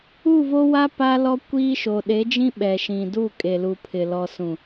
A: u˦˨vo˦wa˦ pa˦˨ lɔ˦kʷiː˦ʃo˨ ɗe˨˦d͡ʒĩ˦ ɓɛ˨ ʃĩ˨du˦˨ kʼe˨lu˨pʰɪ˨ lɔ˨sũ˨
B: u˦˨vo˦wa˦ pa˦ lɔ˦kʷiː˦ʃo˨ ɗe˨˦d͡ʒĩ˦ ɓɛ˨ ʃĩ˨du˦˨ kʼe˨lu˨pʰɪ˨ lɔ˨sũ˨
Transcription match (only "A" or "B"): B